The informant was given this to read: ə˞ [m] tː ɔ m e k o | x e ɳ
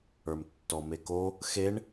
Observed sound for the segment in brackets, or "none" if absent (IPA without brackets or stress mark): m